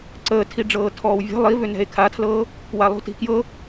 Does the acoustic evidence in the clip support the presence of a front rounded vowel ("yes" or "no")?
yes